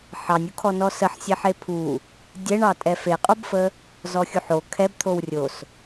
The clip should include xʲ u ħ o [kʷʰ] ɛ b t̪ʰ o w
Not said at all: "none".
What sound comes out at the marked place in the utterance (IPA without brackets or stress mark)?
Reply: kʰ